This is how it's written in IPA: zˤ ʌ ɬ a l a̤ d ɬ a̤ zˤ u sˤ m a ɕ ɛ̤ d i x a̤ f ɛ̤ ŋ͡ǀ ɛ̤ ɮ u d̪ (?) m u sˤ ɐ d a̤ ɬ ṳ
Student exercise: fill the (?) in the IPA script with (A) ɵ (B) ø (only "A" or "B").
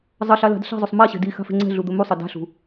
A